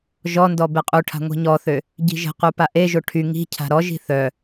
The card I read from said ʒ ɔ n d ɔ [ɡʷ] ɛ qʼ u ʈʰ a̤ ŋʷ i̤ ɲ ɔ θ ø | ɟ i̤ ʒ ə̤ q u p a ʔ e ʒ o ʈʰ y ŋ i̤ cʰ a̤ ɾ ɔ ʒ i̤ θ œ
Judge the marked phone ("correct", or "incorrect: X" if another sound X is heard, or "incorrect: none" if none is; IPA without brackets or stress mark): incorrect: b